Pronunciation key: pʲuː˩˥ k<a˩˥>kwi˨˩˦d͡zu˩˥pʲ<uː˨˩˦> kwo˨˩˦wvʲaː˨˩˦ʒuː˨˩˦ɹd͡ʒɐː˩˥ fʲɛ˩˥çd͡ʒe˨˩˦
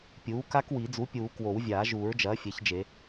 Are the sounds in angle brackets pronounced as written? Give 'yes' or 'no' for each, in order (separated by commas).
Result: no, yes